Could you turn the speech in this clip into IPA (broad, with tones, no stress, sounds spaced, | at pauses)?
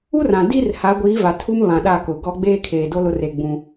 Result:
u˦ r ã˨ d i˦ r h a˨˦ ɡʷ iː˨˦ v a˨ tʰ u˦ m β ã˨ ɗ a˦˨ k ʊ˨ ɡ ɔ˦ ɡ͡b eː˦ kʰ eː˨ d o˦ l ʊ˦ r e˦˨ ɡ͡b ũ˦